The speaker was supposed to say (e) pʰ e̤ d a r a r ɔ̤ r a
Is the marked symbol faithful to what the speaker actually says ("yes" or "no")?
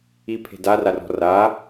no